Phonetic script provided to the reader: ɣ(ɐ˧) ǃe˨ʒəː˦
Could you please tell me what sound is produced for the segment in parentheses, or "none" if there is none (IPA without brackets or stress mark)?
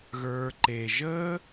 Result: ə˞˧